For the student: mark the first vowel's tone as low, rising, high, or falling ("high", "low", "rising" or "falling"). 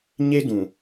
high